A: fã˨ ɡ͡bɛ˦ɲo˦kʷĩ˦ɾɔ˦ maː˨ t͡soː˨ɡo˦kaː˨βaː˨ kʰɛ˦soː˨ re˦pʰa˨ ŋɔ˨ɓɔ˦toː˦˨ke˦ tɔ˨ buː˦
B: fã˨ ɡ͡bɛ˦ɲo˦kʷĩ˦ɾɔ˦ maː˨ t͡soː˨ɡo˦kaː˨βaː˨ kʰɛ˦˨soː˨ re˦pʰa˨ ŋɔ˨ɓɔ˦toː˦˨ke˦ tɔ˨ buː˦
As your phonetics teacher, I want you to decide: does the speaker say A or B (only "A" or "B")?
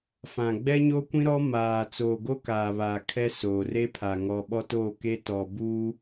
A